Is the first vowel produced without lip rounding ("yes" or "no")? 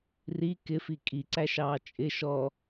yes